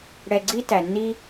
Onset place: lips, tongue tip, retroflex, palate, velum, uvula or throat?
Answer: retroflex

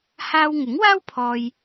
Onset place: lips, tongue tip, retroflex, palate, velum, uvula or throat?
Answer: throat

